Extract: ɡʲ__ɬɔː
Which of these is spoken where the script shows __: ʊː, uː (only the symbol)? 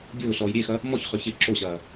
ʊː